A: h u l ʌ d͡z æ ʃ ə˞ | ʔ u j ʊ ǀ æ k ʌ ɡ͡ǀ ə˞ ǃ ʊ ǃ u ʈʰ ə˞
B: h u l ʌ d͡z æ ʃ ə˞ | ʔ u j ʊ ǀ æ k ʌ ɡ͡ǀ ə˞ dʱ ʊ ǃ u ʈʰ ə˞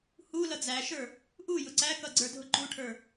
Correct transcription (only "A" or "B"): B